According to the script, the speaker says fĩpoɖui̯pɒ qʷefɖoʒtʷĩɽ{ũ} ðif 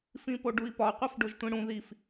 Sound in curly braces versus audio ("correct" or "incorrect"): correct